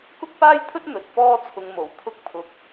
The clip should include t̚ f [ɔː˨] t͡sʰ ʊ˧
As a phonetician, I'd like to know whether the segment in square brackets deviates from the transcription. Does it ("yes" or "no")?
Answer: yes